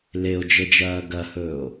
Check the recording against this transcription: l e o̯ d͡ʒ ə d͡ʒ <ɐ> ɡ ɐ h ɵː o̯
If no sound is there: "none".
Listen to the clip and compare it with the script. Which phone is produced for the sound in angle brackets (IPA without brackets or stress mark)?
ɐː